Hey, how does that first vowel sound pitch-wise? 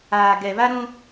low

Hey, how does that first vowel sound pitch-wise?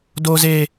high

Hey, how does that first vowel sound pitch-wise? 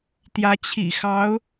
rising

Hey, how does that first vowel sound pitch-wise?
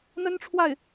high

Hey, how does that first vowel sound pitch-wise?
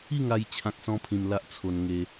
falling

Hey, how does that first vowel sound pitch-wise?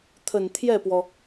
low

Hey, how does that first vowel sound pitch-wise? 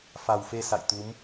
low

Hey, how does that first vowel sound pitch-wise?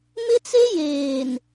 high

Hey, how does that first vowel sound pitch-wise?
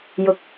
high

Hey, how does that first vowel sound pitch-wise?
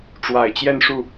low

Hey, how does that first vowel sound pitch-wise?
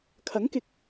rising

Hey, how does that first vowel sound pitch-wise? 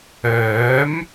rising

